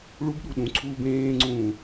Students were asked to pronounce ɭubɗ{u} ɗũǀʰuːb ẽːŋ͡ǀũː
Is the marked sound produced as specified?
yes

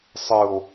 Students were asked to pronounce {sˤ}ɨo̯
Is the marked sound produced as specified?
yes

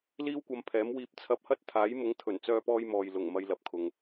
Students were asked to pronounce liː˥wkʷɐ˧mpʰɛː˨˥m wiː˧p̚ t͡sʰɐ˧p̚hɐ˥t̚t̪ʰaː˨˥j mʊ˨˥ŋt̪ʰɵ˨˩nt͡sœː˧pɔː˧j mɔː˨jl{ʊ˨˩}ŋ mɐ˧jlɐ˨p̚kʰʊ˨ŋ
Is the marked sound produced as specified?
yes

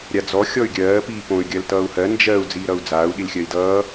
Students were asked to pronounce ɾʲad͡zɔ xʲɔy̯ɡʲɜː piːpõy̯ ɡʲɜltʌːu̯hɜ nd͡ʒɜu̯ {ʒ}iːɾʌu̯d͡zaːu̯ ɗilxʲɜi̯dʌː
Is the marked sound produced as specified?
no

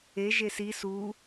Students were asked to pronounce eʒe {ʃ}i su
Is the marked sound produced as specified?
no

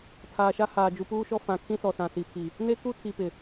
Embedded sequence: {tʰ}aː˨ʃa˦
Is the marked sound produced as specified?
yes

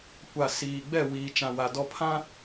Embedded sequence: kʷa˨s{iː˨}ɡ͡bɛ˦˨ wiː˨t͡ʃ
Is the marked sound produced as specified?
yes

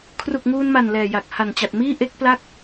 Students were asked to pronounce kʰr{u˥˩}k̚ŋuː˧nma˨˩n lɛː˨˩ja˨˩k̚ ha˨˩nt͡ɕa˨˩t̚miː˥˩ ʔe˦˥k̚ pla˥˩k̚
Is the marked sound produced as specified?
no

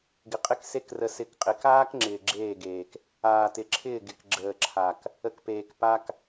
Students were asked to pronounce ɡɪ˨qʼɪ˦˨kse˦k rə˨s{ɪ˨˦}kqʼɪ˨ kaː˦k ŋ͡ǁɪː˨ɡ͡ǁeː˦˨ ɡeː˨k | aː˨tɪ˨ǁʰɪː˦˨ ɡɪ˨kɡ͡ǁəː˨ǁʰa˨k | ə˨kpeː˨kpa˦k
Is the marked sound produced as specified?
yes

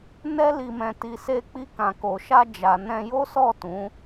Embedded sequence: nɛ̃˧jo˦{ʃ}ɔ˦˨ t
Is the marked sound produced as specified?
no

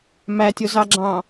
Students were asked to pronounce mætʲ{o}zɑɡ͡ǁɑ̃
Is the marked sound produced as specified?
yes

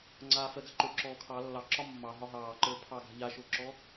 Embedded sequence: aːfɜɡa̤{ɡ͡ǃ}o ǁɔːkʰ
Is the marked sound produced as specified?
no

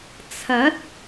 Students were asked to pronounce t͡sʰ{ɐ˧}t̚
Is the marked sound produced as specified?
no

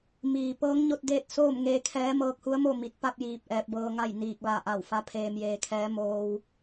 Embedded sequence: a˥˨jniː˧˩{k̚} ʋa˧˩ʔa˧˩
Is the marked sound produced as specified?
yes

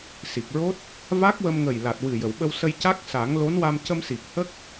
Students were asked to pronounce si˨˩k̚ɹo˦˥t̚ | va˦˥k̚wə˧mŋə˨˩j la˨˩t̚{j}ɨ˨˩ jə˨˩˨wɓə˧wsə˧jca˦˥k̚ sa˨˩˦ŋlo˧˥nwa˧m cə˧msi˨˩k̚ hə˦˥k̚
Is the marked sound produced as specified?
no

